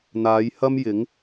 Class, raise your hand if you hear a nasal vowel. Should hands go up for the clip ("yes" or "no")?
no